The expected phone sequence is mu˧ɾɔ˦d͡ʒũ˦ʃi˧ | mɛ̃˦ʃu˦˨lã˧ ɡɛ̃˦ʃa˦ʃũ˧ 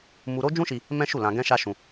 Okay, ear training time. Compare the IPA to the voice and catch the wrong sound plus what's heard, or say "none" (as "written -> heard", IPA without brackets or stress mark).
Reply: ɔ˦ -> o˦